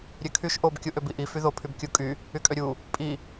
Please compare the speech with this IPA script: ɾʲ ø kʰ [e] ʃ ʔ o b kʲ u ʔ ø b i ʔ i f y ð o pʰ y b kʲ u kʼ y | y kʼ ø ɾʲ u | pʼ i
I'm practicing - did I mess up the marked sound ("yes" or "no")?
yes